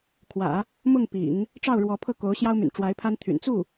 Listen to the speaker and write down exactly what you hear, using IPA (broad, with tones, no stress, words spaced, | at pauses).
kʰwä̰˨˩˦ | mʊ˥˩ŋpḭ˨˩˦ŋ | ʈ͡ʂɑ˥˩ʊ̯ɻwɔ˧˥ pʰɤ˥˩ ko˧˥ʊ̯ɕjɑ˥ʊ̯my̰˨˩n ʈ͡ʂwa˧˥ɪ̯pʰa˥n t̪ʰy̰˨˩n t͡su˥˩